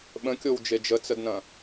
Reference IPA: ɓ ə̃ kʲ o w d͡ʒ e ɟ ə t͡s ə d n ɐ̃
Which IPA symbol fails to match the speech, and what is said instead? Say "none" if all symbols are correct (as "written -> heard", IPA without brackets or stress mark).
ɟ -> d͡ʒ